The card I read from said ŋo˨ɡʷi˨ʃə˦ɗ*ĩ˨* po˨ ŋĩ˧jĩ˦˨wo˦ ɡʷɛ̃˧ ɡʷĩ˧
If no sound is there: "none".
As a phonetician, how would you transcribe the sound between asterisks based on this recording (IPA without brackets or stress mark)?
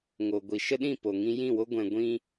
ĩ˦˨